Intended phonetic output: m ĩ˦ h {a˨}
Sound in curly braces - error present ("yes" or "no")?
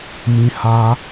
yes